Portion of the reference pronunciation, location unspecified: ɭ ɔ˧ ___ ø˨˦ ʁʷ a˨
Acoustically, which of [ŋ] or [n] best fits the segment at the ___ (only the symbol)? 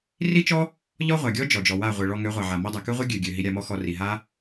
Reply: ŋ